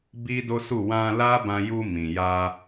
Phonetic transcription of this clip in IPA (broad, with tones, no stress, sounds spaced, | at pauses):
b i˦ d o˦ s u˦˨ w ã˧ l a˦ b ã˧ j u˧ m ĩ˨ j a˧